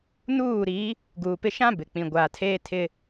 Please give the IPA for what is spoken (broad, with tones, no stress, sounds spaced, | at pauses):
n uː˦˨ ɾ i˨˦ | ɡ uː˨ p ɪ˦ ʃ ã˦ b ɪ˨ k͡p ĩ˨ ɡʷ aː˨ tʰ eː˦ tʰ ɪ˦